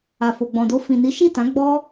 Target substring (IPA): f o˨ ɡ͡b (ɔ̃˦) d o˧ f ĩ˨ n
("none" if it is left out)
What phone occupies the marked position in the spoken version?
ɔ̃˨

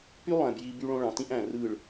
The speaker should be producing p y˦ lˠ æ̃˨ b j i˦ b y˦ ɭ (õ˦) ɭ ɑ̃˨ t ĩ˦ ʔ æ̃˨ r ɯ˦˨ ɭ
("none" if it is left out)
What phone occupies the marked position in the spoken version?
õ˦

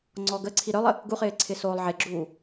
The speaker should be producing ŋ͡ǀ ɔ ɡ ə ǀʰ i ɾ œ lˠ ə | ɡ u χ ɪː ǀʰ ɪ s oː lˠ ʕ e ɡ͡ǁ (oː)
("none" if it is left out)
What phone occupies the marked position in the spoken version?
uː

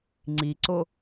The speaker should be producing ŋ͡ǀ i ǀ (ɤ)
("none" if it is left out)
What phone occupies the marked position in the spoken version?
o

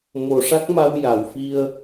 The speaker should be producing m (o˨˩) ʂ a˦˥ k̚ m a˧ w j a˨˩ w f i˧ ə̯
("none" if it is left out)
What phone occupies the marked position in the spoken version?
o˨˩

